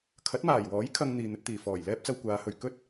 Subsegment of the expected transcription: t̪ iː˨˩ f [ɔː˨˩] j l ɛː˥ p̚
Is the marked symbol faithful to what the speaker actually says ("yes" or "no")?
yes